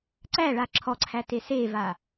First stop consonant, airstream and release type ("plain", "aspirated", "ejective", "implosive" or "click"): click